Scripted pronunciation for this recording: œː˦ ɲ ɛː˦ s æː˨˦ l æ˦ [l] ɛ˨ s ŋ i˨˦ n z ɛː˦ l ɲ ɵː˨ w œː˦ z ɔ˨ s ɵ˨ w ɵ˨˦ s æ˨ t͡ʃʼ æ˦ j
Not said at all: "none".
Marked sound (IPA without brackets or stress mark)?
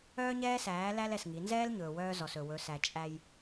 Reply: l